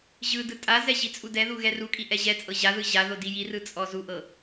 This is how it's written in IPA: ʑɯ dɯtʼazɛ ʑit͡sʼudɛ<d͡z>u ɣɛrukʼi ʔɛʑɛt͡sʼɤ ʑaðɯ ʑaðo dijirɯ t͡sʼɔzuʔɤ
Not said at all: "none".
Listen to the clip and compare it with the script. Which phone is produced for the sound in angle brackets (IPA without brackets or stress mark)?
ð